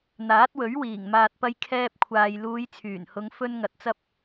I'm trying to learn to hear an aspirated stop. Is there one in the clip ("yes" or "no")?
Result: yes